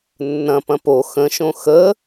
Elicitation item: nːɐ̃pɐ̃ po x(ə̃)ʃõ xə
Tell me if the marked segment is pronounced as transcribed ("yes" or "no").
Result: yes